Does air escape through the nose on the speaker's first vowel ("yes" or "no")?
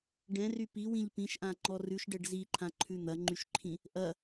yes